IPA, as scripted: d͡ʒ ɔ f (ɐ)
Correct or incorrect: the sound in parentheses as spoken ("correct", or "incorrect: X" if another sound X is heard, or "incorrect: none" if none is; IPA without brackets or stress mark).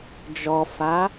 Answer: incorrect: a